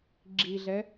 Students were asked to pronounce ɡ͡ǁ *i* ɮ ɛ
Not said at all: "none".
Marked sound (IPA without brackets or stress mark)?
i